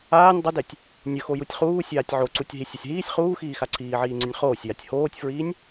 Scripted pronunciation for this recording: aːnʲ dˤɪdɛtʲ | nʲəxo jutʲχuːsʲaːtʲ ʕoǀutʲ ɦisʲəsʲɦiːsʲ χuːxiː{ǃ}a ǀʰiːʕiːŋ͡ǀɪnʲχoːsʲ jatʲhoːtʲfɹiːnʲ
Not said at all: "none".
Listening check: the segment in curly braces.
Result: x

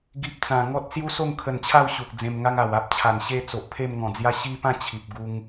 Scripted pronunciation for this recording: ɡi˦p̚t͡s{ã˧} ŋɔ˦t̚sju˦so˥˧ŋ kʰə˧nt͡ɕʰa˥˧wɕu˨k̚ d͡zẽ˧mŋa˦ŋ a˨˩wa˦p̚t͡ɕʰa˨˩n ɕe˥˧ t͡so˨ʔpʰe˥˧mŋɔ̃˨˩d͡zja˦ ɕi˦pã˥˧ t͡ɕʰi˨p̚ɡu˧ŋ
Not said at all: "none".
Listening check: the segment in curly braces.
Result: ã˧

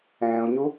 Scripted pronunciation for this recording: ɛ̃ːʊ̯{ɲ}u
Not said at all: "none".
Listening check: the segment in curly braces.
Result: ɲ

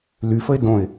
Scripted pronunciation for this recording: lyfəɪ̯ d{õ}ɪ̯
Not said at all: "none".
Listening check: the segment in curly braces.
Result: õ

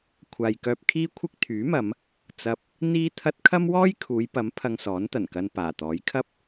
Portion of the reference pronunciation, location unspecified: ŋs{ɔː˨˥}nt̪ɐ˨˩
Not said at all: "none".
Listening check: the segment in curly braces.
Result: ɔː˨˥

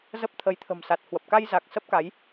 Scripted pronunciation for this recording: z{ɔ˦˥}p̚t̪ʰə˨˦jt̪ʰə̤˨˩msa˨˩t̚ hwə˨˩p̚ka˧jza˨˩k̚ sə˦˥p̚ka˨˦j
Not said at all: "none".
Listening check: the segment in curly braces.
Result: ə˦˥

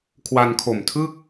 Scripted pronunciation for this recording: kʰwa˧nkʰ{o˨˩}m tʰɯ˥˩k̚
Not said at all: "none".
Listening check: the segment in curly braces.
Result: o˨˩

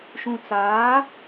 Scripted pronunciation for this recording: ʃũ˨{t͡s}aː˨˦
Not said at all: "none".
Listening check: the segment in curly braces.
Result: t͡s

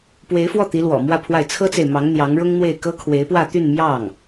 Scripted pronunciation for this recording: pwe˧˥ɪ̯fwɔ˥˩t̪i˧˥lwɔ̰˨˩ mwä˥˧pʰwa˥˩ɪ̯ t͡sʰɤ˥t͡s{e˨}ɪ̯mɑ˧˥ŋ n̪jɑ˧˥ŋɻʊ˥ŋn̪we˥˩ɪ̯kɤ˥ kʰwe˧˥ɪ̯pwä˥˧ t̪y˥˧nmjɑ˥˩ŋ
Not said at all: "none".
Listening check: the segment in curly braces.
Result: e˨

